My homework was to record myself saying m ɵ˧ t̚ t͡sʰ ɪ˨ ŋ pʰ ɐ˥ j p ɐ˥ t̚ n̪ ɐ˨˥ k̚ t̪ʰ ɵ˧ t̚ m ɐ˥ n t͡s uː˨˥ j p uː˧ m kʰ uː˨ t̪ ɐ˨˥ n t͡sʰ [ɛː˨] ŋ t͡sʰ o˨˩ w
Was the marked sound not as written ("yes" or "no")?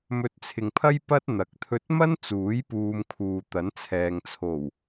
no